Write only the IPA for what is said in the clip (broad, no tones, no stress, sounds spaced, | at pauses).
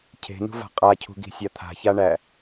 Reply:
cʰ e̤ n ṳ v a̤ qʼ a cʰ ṳ ɡ i̤ sʲ a t̪ʰ a̤ ç a ɳ æ